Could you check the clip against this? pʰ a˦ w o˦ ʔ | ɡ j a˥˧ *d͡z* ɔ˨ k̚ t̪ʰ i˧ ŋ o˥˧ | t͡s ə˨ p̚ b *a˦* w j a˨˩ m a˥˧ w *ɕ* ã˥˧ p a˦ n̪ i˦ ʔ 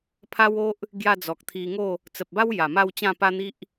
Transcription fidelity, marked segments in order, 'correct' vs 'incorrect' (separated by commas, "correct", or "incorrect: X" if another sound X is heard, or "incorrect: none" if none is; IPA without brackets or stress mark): correct, correct, incorrect: t͡ɕ